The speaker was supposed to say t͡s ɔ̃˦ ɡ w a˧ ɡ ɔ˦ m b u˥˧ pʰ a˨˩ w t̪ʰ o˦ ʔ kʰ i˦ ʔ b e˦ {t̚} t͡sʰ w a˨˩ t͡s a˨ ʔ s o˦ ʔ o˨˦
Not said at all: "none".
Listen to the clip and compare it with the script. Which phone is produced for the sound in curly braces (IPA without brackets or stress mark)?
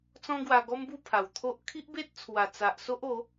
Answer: t̚